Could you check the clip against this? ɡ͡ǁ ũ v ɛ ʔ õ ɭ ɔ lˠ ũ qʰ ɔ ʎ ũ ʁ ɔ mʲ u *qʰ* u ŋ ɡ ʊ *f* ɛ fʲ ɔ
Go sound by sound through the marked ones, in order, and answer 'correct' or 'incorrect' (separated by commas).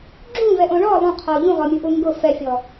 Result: incorrect, correct